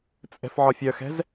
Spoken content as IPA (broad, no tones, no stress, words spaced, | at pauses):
t͡sʼɛ̤fʕɒfʲœxɛ̤z